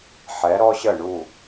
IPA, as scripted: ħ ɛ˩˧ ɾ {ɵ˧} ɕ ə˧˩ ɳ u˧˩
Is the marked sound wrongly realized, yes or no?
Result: yes